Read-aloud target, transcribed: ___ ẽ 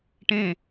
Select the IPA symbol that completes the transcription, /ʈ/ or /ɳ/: ʈ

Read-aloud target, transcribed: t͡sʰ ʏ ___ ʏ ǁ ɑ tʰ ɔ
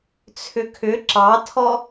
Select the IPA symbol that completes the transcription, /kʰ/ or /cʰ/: kʰ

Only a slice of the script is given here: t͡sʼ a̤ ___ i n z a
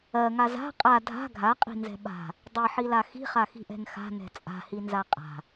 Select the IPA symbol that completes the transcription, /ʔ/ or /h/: h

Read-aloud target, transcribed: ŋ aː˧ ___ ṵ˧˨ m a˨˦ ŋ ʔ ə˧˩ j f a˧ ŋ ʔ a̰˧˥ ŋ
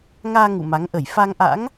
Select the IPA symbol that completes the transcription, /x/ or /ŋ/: ŋ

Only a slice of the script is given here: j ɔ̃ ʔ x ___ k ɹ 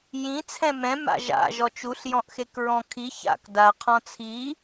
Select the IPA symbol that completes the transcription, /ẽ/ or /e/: e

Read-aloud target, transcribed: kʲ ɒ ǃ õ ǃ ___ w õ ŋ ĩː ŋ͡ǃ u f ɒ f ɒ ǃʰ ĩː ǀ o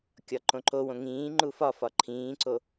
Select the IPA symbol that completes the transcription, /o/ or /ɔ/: o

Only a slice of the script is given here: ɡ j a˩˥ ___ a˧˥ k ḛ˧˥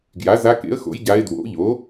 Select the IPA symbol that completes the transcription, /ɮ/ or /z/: z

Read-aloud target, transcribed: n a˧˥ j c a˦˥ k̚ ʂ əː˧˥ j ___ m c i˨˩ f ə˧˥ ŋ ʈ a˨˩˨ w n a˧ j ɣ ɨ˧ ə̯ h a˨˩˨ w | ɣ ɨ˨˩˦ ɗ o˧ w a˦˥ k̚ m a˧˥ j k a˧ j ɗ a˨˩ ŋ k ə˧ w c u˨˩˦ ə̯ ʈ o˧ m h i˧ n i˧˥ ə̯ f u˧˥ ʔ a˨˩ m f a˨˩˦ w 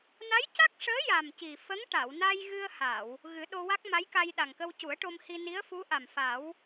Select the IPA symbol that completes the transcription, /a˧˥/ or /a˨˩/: a˨˩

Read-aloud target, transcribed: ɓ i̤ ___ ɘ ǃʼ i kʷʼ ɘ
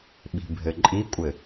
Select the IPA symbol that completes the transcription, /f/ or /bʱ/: bʱ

